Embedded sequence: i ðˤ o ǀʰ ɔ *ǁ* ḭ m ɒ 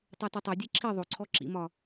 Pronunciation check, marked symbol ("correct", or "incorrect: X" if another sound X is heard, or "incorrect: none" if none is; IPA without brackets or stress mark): correct